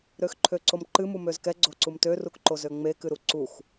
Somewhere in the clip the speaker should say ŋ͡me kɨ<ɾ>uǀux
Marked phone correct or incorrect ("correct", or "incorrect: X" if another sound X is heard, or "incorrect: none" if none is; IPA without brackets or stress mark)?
correct